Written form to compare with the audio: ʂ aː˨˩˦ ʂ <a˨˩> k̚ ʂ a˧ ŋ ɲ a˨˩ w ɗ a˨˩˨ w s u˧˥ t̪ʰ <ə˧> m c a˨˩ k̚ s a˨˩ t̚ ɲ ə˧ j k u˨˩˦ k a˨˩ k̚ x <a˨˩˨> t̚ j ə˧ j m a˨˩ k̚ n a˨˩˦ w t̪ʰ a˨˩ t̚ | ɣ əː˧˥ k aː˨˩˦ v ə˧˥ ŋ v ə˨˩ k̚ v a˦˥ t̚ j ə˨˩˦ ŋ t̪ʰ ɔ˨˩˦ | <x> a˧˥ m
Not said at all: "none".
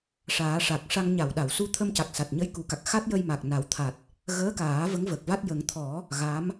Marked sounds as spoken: a˨˩, ə˧, a˦˥, ɣ

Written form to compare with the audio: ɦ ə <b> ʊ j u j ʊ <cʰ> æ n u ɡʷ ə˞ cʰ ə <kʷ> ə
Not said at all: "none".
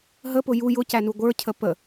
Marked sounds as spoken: p, c, p

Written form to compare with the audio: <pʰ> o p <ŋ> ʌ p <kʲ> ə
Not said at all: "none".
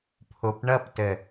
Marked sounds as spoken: pʰ, ɳ, t

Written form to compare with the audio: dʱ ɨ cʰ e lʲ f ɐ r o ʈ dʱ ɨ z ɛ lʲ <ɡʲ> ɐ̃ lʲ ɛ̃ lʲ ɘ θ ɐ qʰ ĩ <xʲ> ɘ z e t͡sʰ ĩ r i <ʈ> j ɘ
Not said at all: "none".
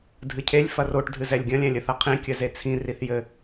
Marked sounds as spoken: ɡʲ, kʲ, θ

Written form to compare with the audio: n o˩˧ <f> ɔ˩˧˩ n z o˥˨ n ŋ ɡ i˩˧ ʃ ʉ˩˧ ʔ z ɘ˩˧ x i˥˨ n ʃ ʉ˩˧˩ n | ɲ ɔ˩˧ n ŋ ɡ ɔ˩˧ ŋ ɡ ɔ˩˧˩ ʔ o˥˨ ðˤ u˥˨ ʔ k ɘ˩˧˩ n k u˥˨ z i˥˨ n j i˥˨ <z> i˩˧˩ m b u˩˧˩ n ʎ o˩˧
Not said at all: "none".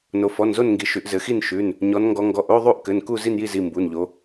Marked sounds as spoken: f, z

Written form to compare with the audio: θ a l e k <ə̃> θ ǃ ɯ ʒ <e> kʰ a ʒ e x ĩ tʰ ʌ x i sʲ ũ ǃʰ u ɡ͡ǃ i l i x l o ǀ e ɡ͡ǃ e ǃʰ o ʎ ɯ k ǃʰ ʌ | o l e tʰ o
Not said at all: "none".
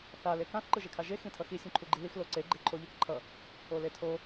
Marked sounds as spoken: ã, e

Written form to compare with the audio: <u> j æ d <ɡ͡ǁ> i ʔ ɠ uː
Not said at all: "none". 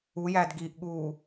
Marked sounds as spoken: u, ɡ

